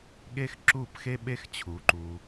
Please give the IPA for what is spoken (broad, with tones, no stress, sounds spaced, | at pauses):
ɠ e˦ x ǁ u˦˨ p x e˦ ɓ e˦ x t͡ɕʰ u˨˦ ǃ u˧